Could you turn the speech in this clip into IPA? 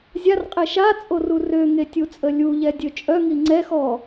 zʲ a r qʼ e ʃ a t͡sʼ o r u r ø ŋ e tʲ u t͡sʼ ə lʲ u ʎ ɛ dʲ ø t͡ʃʼ œ ŋ i ŋ͡ǀ ɛ x ɔ

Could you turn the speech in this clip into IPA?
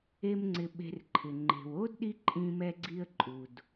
e˥ m ŋ͡ǀ ɪ˧ ɓ e̤˧ r ǃʰ ɪ˩ ŋ͡ǃ e̤˩ w o˥ d ɗ i˥ ǃʼ ĩ˧ m ɛ˧ ɡ͡ǀ i˧ ə̯ ǃʼ u˩ d

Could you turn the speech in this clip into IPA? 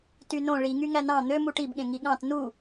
t y n õ ɭ i ŋ y ŋ æ n ɑ̃ n̪ ø m u ʈ i b ɠ ẽ ŋ i ɠ ɑ̃ t n u

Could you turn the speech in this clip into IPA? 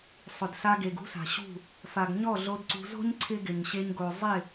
sˤ ʊ˨ d s a˧ ɡ e˨ ɡ ṳ˦ s a̤˨ ɕ ṳ˦˨ | f a˨ ɡ ɲ ɔ˦˨ ɮ o˧ d ǀ ṳ˧ z o̤˦ ɲ ǀʰ ɪ˦ ɡ ɪ˨ ɲ ɕ e˧ ɲ ɡ o˨ zˤ ɪ˦˨

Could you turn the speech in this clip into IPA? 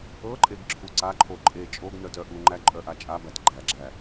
ɤ ǃʼ e ɡ ǁʰ u ǀ a ǃʰ o ǃʼ e t͡ʃʼ o ɡ n œ t œ ʔ u ŋ͡ǃ æ ǃʼ œ ʔ a t͡ʃʼ a b æ t ɡ͡ǃ æ ɡ͡ǁ æ

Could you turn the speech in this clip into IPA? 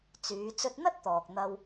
t͡s yː˨˧ t͡s ɵ˧ t̚ n̪ ɐ˥ t̚ t̪ ɔː˨ k̚ n̪ ɐ˧ w

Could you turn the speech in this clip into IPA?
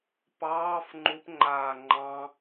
p ɑː f ŋ͡ǃ u p ŋ͡ǃ aː ŋ͡ǃ ɑ̃

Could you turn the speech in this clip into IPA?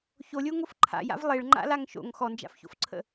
ç o lʲ o ŋ o f ǃʰ a̰ j a̰ v lˠ e ɭ ŋ͡ǃ a̰ l a ŋ ʃ o̰ ŋ x ɔ n d͡ʒ a̰ f ç o̰ f ǀʰ ə̰

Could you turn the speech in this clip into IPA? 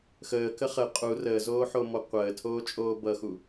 x əː k ə χ ə qʼ u r əː z oː ħ o m ɔ qʷ əː tʰ oː t͡ʃʼ oː b ʌ x u

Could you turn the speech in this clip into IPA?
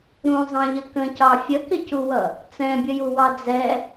ɾ ũ zˤ ɑ̃ ʎ ə k ə̃ c ɑ fʲ ə k ɪ c u w ʌ | t͡s ɛ̃ bʲ ə j u w ɑ d͡z ɛ

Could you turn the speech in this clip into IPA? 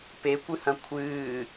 p e kʷ ɨ h ɐ̃ kʷʰ ɨː

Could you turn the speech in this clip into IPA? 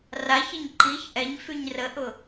r a ç ə ɲ ǃ i ç ʔ ɛ ɲ f y ɲ r ə ʔ ʊ

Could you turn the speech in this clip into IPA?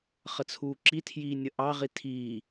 χ ə t͡sʰ uː ǁ i tʰ j iː nʲ ə ʔ ɑ ʁ i tʰ i

